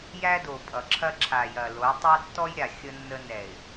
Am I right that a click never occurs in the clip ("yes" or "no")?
no